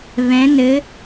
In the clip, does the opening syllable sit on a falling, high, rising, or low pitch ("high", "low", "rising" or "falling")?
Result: rising